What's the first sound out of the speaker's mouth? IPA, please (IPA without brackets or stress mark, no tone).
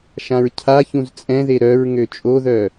ʃ